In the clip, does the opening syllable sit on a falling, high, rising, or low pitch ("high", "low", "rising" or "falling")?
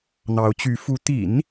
rising